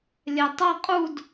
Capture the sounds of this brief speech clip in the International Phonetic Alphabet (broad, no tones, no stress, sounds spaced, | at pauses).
lʲ ɛ tˤ ʌ qʼ u d